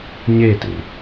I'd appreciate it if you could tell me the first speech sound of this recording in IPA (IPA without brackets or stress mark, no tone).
ɲ